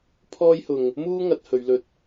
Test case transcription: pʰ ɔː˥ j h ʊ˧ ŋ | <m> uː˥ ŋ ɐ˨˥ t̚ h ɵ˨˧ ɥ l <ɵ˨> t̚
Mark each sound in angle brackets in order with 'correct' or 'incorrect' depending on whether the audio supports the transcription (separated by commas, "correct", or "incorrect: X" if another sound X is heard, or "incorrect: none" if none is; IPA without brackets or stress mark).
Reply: correct, incorrect: ɵ˧